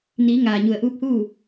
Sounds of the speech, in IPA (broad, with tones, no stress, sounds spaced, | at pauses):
n iː˩˧ ŋ aː˩ ɲ u˩ ə̯ ʔ uː˧˥ p̚ h uː˥˨